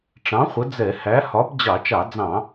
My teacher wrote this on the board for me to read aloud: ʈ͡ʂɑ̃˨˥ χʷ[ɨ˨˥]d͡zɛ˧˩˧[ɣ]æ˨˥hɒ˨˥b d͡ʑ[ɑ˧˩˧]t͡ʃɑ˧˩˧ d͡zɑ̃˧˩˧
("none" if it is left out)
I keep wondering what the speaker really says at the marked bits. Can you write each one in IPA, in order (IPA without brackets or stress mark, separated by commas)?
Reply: ə˨˥, h, ɑ˧˩˧